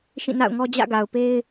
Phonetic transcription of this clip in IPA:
ʃ ĩ˦˨ n a̰˦˨ ʊ̯ ŋ ɔ˦ d͡ʑ ä̰˦˨ ɡ a˨ ʊ̯ p e˦ ɪ̯

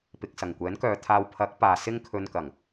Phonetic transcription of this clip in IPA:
p ɪ˨ k̚ s ɐ˨˩ ŋ kʷ ɛː˨˥ n k œː˨˧ t̪ʰ aː˧ w pʰ ɐ˨˥ k̚ p aː˨ s ɪ˥ ŋ kʰ ɵ˧ n k ɐ˨˩ ŋ

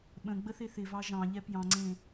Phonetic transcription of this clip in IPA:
ɓ ə̃ ɡ͡b ə θ e θ ɪ v ɑ ʒ ɑ̃ ʎ ɛ p j ɑ̃ ŋ͡ǀ ẽ

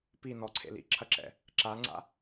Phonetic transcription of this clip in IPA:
p i n ɔ ǀʰ ḛ l ḭ ǁʰ ɐ ǁ ɛ̰ | ǁ a ŋ͡ǀ a̰

